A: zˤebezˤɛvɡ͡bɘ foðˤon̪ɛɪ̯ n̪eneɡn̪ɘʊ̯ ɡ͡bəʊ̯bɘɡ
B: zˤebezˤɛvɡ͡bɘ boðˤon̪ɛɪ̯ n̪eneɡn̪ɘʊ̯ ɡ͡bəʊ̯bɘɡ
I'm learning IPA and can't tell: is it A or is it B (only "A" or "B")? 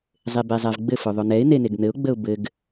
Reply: A